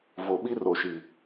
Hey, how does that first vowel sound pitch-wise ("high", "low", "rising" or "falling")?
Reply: low